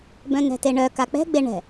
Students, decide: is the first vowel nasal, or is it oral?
nasal